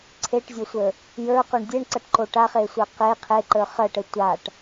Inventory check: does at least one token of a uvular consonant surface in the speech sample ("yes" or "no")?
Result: yes